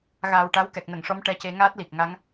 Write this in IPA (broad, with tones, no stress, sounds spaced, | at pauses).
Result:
ɣ aː˨˩ w ʈ a˧˥ w k ɛ˨˩ k̚ n ə˨˩˨ ŋ ʂ ɔ˧˥ m ʈ ɛ˧ c e˧ ŋ aː˦˥ t̚ l i˨˩ k̚ ŋ a˧˥ ŋ